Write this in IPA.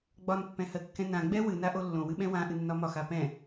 ɡ͡b ɒ n pː ɛ̃ h ɜ kː ɛ̃ n ã ɡ͡b ɛ w ɨ n a ʔ o lː õ w ɨ ɓ ɛ̃ w ã ʔ ɨ nː ɒ m ɒ x a p ɛ̃

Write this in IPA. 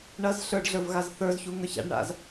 ɳ ɐ z ɬ ə˞ ɖ ɮ ə˞ v ɣ a z θ ə˞ z ç u ŋ ə˞ ç a̰ ɖ ɳ a̰ z

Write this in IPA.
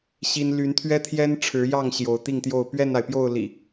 ɕ i˦ n l y˨˦ n t̪ʰ ɥ ɛ˦ t̪ʰ j ɛ˦ n ʈ͡ʂʰ ɻ̩˨˦ j ɑ˥˨ ŋ ɕ j o˨˦ ʊ̯ t̪ i˥˨ ŋ t̪ j o˥˨ ʊ̯ p ɥ ɛ˥˨ n a˩ ɪ̯ p j o˥˨ ʊ̯ l ḭ˨˩

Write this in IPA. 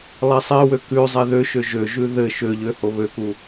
lˠ e sˤ e w ø k ʉ zˤ e ð ø ʃ ø ʒ ø ʒ ʉ ð ɘ ʃ ø ʎ ø h o β ø k u

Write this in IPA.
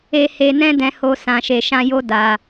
e˧ h e˧ n ɛ̃˦ d ɛ̃˧ h o˧ s ã˨ ʃ e˨ ʃ ã˧ j o˦ d a˧

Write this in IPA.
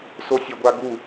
s o sʲ ɘ ɡʷ a ɡ u

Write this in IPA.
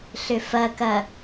ɬ ʏ f ɐ k ɐ

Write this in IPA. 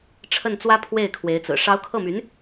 ʈ͡ʂʰ ə˥˩ n t͡s w ä˥ pʰ w e˥˩ ɪ̯ kʰ w e˧˥ ɪ̯ t͡s ɹ̩˨˩ ʂ ɑ˧˥ ʊ̯ kʰ ɤ˥˩ m y˧˥ n

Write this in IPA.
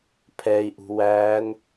pʰ ɛ i̯ ʔ ṳ w æ n

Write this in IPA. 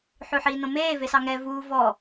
ħ ʉ ħ iː n õ m eː v e s ɑ ŋ ɛ v uː v ɔ

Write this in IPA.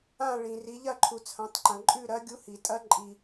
ã˦˨ ɭ ĩ˩ r i˩˧ ʎ ɐ˦˨ ǃʰ u˩ t͡sʰ ɐ̃˩˧ tˤ ǃ ɐ̃˩ ǃʼ ʉ˦˨ ɾ ɐ˧˥ ɡʲ u˧˥ h i˩ tʼ ɐ˧˥ ǃʼ i˩

